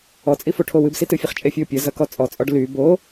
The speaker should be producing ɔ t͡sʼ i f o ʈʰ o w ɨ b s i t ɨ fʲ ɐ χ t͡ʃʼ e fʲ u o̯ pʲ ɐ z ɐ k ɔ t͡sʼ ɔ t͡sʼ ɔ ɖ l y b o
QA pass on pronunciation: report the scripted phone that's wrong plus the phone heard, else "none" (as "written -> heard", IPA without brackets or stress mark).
none